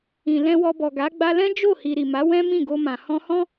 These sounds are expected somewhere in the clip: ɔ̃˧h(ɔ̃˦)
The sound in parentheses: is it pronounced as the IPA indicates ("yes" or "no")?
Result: yes